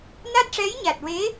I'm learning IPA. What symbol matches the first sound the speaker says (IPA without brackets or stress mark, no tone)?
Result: n